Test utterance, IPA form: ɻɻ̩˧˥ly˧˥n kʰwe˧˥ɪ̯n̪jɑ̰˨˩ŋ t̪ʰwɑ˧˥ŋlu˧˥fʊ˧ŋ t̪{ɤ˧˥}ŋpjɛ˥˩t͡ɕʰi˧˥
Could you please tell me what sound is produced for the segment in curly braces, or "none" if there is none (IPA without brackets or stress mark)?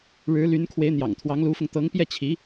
ɤ˧˥